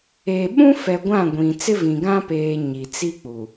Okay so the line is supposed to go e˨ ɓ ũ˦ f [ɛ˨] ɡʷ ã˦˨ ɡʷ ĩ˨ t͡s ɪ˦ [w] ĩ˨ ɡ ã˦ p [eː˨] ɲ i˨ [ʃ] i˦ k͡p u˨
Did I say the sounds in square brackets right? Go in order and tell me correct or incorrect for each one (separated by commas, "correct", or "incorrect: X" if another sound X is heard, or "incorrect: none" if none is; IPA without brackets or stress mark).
correct, incorrect: v, correct, incorrect: t͡s